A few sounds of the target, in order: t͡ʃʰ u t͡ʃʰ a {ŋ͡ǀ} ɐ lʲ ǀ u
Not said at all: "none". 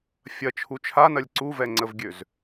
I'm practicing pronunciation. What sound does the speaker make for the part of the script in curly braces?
n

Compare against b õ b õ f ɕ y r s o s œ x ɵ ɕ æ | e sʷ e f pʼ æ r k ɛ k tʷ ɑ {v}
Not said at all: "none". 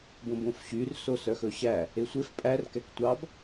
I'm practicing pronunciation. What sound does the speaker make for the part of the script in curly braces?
b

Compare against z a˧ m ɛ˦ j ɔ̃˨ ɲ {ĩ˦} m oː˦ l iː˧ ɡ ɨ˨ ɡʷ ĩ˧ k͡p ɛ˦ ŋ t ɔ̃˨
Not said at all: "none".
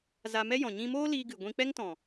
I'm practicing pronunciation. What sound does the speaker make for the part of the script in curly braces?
ĩ˧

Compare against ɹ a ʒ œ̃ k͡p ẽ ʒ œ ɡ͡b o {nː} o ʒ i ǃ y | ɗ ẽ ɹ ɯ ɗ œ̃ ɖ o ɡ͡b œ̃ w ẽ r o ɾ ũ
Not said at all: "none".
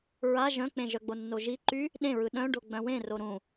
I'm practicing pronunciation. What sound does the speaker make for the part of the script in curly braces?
nː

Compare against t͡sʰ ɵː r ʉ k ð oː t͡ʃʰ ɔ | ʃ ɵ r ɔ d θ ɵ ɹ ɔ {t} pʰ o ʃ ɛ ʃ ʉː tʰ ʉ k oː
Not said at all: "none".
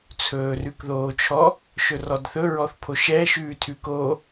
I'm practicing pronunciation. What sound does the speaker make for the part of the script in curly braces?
θ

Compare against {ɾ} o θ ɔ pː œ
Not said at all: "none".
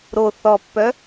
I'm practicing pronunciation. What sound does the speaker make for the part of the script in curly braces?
ɾ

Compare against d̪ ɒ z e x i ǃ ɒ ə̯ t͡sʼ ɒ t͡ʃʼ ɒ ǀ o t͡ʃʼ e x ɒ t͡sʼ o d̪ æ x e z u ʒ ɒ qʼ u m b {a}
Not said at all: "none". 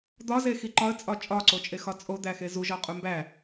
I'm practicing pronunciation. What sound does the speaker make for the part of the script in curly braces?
æ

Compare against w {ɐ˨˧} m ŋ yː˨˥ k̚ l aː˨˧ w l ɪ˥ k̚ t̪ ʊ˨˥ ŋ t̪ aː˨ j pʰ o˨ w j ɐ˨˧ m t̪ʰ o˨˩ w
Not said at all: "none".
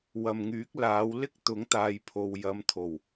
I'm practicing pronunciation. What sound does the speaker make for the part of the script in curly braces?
ɐ˨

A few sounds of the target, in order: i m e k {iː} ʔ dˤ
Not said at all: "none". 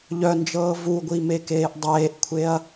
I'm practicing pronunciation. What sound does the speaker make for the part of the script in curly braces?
eː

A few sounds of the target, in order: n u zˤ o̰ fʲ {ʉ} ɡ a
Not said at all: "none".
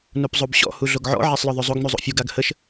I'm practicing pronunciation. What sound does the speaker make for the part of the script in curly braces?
u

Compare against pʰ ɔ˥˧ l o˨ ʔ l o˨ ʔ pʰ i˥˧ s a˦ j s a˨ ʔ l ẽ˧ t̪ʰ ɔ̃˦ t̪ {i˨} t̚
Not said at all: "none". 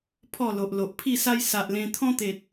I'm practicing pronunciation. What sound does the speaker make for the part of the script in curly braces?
e˨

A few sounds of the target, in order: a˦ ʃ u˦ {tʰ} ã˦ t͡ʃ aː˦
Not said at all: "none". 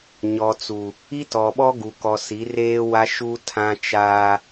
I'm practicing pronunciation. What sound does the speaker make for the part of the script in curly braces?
tʰ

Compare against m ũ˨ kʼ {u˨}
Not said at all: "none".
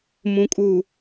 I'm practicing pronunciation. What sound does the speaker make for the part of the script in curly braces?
uː˨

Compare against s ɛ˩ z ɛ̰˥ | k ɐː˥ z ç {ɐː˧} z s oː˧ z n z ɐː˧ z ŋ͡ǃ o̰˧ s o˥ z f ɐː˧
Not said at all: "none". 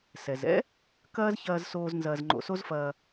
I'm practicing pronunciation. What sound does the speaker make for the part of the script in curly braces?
ɐː˧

